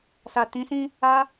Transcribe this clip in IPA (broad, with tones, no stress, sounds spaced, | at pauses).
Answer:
s a˨ t ĩ˨˦ s ĩ˦ | a˧